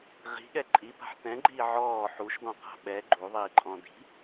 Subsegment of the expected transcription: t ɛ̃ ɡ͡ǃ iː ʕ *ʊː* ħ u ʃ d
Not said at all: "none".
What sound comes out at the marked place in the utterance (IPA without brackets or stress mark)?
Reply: ɔː